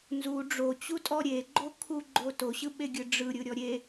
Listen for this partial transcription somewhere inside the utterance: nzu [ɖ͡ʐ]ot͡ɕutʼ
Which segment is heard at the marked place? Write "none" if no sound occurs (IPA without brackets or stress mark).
ɖ͡ʐ